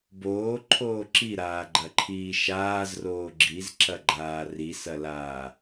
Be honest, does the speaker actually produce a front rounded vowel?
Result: no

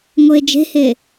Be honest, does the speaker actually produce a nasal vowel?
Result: no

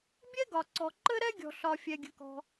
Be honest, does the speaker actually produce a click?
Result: yes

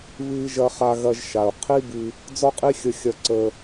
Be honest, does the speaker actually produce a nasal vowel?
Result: no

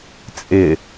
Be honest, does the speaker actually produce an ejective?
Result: yes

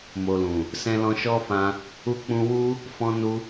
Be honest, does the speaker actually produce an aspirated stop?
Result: no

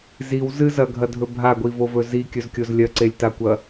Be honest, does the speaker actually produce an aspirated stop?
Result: no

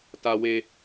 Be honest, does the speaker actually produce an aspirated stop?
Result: no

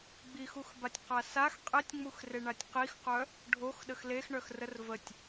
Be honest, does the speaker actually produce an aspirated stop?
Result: no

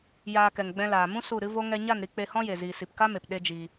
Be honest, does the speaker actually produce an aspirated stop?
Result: no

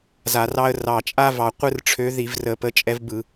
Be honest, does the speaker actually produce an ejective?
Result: yes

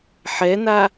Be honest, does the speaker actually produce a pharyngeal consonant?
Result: yes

